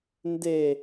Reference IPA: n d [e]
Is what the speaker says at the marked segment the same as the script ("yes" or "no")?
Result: yes